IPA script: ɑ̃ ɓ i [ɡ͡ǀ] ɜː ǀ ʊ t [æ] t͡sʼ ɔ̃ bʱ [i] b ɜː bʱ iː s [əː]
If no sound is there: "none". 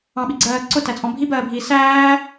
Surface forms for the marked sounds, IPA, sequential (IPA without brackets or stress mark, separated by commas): ɡ͡ǀ, æ, i, æː